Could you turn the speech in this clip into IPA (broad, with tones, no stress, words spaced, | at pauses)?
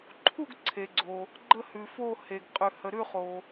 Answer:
ǃʰu˥˨ɡǀʰe˩ɡ͡ǀo˩ | ɡ͡ǃə˥˨hʉ˩fo˥˨ he˩ɡqʼʉ˩ hə˩ɾʉ˥˨ χo˩